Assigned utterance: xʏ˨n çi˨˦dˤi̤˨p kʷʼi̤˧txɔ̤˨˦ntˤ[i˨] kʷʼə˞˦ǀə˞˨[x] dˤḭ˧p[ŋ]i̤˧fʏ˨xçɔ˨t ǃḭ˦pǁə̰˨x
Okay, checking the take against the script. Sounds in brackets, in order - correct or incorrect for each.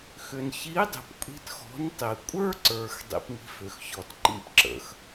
correct, correct, correct

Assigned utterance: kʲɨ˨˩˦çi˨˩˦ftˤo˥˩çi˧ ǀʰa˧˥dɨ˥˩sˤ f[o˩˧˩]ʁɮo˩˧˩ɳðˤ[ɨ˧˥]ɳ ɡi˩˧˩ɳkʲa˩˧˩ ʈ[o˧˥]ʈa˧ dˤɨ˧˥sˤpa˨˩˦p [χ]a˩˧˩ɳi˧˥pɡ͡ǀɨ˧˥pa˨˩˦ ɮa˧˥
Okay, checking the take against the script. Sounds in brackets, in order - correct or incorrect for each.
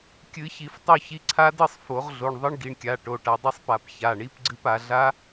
incorrect, correct, incorrect, incorrect

